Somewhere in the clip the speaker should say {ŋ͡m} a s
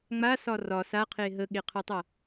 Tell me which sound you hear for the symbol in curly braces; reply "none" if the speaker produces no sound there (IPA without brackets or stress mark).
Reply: ŋ͡m